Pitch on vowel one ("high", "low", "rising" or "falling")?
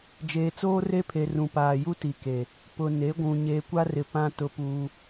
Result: low